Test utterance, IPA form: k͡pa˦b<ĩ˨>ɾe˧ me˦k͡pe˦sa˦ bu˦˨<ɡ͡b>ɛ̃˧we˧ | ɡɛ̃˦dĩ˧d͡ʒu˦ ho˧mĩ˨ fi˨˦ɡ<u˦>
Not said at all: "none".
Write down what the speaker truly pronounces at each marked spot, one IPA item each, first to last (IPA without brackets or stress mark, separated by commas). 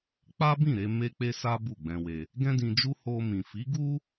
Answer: ĩ˦˨, ɡ͡b, u˦